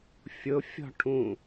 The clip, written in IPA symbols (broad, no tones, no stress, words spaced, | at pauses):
fʲʊ fʲɔ̤ʈʰũ